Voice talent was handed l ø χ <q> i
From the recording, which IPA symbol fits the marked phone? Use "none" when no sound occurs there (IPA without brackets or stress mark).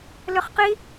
q